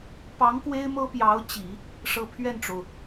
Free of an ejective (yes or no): yes